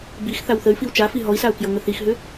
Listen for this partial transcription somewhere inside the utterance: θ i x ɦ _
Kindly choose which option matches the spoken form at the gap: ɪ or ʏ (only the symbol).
ʏ